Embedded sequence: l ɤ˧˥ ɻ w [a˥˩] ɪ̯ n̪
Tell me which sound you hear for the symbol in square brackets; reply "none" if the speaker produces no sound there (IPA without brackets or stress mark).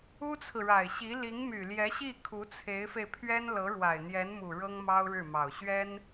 a˨˩